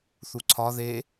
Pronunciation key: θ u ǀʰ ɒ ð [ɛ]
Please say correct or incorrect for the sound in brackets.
incorrect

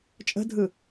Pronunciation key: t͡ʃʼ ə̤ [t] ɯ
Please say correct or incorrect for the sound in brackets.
incorrect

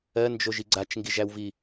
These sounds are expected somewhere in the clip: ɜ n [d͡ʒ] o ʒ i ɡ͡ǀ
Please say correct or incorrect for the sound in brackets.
correct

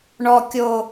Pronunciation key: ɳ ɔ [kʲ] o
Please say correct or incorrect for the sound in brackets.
correct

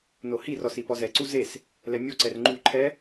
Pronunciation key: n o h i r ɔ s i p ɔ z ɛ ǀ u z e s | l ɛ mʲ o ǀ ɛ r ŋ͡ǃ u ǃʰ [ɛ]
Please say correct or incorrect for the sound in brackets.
correct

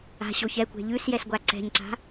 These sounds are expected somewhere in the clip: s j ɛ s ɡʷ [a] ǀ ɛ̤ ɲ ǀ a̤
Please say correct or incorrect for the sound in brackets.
correct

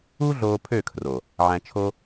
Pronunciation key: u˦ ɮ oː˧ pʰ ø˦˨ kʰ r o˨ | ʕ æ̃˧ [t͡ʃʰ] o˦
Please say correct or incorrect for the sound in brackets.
correct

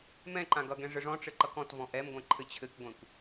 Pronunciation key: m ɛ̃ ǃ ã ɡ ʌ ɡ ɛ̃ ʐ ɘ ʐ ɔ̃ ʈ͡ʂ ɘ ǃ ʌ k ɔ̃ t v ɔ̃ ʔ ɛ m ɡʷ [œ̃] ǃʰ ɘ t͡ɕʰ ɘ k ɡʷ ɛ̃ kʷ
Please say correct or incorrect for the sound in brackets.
incorrect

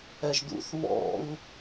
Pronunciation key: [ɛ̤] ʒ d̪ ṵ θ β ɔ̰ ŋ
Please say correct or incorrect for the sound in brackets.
incorrect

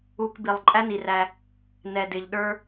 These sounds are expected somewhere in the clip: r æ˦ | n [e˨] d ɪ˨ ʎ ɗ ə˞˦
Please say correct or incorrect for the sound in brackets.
incorrect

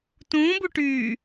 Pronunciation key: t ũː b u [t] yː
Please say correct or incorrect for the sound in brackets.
incorrect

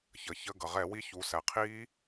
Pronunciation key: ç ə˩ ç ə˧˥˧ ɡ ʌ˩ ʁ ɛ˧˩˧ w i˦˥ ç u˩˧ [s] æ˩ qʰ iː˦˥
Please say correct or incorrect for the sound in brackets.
correct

